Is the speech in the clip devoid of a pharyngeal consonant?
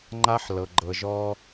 no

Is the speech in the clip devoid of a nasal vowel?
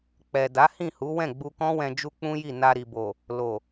no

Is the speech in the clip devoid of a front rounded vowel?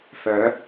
no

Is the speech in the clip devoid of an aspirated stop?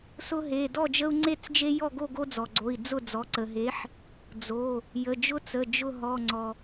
yes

